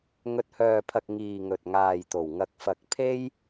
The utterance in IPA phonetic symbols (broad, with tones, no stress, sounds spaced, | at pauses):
ŋ ɵ˨ t̚ h œː˨ pʰ ɐ˨ k̚ ŋ iː˨ ŋ ɵ˨ t̚ ŋ aː˨ j t̪ o˨˩ w ŋ ɐ˨ k̚ f ɐ˨˥ k̚ pʰ e˥ j